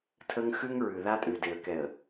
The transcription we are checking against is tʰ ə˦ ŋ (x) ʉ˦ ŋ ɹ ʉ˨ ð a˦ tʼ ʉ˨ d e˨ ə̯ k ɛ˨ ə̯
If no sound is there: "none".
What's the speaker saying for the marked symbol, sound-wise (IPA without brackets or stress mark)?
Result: x